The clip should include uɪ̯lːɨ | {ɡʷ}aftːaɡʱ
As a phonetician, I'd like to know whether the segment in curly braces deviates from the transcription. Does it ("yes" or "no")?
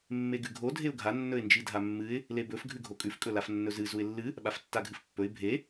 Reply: yes